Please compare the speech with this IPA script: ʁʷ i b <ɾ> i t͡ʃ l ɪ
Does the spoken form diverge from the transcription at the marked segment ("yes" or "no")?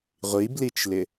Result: yes